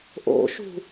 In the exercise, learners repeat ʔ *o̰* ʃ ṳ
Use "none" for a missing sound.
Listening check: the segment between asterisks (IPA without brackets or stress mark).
o̰